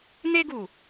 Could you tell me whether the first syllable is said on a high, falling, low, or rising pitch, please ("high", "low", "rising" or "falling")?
high